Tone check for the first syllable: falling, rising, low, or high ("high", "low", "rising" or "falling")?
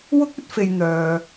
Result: high